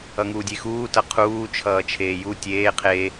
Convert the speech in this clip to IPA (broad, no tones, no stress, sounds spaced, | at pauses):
ʌ ŋ uː dʲ e x uː t ʌ qʰ uː t͡ʃʰ ʌː t͡ʃʰ eː j u tʲ eː qʰ e